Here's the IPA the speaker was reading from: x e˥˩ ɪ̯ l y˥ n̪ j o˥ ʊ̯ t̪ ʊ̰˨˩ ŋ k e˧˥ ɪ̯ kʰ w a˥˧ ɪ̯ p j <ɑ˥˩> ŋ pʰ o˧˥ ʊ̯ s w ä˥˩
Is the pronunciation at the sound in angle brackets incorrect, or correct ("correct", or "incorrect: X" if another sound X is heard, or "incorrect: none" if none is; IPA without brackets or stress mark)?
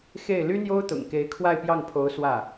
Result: correct